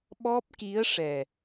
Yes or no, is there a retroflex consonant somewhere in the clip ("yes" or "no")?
yes